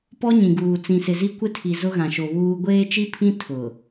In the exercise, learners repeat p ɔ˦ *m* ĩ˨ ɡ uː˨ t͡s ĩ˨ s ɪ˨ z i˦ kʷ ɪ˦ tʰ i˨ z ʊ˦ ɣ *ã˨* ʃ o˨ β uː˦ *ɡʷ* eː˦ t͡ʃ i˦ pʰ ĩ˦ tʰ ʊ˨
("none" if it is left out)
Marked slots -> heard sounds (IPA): ɲ, ã˨, ɡʷ

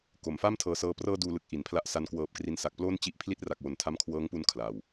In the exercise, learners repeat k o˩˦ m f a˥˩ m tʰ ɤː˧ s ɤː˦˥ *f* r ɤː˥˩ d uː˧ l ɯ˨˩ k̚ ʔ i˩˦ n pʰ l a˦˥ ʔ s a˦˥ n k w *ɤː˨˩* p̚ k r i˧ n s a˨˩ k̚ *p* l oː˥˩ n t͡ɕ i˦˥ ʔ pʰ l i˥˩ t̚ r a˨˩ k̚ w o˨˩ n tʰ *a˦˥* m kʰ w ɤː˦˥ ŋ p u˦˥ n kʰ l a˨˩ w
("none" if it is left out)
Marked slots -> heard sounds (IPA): p, ɤː˨˩, p, a˦˥

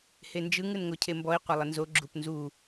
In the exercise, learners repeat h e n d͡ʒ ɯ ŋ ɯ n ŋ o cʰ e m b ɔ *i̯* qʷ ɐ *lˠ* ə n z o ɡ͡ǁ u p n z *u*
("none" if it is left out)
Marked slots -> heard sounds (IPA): i̯, lˠ, u

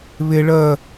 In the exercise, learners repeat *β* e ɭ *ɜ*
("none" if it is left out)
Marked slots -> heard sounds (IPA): β, ɜ

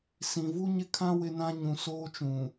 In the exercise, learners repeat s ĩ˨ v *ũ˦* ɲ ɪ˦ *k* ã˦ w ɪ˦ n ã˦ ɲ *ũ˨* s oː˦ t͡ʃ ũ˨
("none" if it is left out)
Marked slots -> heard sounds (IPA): u˦, kʰ, ũ˨

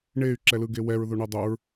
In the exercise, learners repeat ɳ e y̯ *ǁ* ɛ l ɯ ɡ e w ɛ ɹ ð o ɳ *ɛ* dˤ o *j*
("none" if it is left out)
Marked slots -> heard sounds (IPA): ǁ, ɛ, ɹ

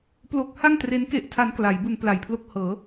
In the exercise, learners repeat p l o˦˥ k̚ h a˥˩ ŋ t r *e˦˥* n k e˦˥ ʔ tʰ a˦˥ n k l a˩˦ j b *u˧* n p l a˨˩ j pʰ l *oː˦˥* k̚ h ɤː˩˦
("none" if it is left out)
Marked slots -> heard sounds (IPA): e˦˥, u˧, o˦˥

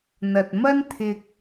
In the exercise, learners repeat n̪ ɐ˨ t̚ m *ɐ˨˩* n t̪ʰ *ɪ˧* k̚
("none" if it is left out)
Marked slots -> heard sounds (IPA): ɐ˥, ɪ˧

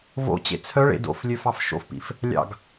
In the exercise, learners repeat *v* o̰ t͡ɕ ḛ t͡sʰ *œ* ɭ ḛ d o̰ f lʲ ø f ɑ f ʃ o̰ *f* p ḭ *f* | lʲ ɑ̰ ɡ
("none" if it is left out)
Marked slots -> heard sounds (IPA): v, œ, f, f

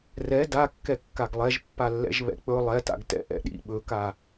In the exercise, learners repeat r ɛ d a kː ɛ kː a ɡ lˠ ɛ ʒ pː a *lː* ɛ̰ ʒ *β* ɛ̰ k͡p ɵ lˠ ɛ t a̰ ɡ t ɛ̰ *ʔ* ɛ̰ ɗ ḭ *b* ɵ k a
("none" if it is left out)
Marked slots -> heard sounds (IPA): lː, β, ʔ, ɓ

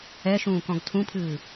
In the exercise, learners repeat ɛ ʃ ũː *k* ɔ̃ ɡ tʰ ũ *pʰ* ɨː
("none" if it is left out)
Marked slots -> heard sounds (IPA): k, pʰ

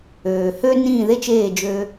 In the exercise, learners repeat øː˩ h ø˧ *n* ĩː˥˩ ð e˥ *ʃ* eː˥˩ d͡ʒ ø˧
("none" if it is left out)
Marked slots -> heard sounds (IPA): n, t͡ʃ

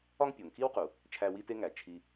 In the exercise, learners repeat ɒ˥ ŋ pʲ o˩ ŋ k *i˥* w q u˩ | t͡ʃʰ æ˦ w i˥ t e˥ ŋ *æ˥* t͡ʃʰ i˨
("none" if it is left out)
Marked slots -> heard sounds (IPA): i˥, æ˩

